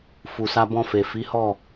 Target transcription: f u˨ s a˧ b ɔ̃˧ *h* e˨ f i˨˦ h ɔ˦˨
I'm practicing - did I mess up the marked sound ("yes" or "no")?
yes